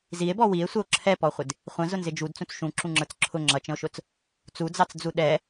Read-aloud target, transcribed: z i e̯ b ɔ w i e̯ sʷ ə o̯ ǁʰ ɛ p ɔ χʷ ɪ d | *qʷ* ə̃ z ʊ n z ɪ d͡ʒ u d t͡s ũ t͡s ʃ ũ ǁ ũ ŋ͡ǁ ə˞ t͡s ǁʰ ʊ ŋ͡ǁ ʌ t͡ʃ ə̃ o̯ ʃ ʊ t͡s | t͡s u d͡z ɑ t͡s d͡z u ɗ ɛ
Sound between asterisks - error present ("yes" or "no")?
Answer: yes